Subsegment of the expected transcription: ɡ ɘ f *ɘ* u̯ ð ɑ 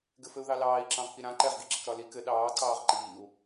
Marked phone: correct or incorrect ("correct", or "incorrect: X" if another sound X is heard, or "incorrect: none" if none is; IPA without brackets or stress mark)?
correct